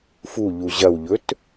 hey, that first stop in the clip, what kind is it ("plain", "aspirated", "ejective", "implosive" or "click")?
plain